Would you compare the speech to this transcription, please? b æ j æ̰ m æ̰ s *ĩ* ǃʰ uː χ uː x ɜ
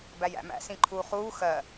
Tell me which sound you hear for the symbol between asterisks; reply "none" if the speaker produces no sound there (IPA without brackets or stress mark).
ĩ